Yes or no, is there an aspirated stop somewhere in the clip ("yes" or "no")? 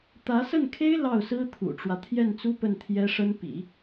yes